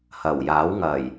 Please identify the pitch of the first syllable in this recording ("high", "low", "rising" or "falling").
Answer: low